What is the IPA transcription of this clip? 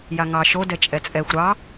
jaŋɑ ʃo dɛt͡ʃʼɛt͡sʼɛxʷ ɾɑ

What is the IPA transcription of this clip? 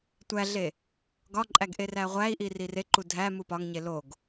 tʷæɮe | ɡɒǃʼæɡʔe ræʁʷæi̯ʔi rire ǃudʱæ mupɒŋɲe loɡ

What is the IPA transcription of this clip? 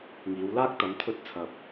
ŋiː˨˧wlaː˥k̚ t̪ɐ˨˧mt̪ʰɵ˧t̚ t͡sʰɐ˨p̚

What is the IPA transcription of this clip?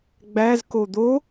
ɡ͡bæzko d̪o

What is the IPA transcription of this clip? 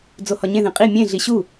d͡zohɒɲẽðẽ qʼi mʲẽ ɮiɕu

